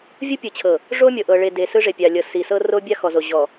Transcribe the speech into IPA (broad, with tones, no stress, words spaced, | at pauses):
vʲo˦pʲɯ˨t͡ɕʰɤ˨ | ʐo˦mʲɤ˨ ʔɤ˨ɭe˨ de˨sɯ˦ʐe˨ pʲa˨lʲɤ˨si˨sɤ˦ ro˦bʲa˦xɔ˨zo˨ ʑɔ˨